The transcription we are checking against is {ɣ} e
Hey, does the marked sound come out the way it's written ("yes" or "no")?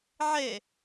no